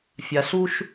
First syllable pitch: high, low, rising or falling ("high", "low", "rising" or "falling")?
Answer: low